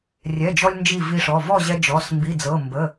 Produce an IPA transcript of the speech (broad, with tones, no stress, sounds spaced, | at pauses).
rʲ ɛ˩˧˩ d͡ʒ ɔ˧ lʲ n d͡ʒ i˧˩ v i˧ ʂ ɔ˩˧˩ v ɔ˥˨ ʑ ɛ˧ d͡ʒ ɔ˩˧˩ s m b i˩˧˩ d͡z ɤ˩˧˩ m b ə˩˧˩